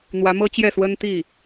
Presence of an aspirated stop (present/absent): absent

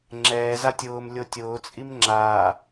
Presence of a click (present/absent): present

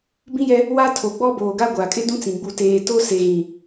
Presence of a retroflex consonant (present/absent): absent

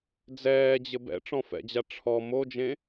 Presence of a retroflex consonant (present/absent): present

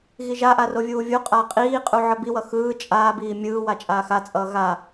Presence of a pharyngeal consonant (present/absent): present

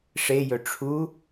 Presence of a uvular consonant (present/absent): absent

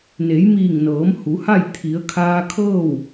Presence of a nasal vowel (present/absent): absent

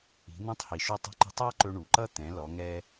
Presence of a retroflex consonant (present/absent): present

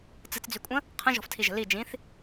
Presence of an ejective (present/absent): present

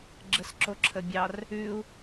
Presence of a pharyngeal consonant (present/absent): absent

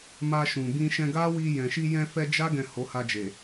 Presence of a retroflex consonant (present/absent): absent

